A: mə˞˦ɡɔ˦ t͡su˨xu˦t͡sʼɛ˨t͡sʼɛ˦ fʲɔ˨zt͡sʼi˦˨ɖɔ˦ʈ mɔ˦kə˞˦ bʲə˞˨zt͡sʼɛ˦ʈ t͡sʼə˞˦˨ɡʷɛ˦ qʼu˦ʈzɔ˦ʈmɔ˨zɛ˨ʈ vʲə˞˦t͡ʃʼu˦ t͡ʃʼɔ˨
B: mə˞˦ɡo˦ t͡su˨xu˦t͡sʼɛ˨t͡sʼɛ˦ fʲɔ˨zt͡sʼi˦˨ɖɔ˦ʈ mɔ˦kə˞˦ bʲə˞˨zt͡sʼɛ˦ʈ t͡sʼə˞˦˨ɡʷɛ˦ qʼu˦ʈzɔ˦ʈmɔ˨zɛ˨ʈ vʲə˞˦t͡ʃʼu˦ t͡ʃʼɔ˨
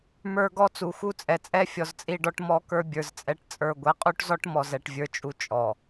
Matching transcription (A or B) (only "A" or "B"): A